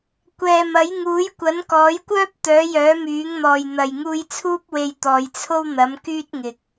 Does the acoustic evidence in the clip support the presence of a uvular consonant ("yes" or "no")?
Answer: no